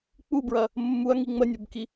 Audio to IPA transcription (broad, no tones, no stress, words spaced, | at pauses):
k͡pubɹɐ | mːuɐ̯ŋi ŋ͡mənʲobki